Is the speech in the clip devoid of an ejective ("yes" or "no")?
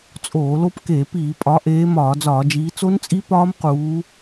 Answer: no